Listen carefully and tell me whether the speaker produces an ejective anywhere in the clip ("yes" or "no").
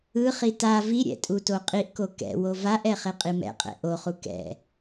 yes